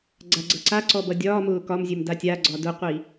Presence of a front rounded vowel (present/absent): absent